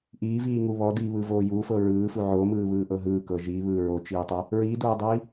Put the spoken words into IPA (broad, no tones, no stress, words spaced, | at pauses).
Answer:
ʔiːviːŋu βɔdiːβɯvoː juːfɤ ɹɯːfu ʕomɯːβɯːʔɤ ɦɯːkɤ ʒiβɯː ɹot͡ʃiːtˤɤ | ɹiːdoːdˤiː